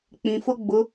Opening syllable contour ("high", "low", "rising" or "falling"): low